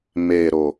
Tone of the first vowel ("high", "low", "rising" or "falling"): low